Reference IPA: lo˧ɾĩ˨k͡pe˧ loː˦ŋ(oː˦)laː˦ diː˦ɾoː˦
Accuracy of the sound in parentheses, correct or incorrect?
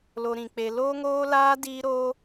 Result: correct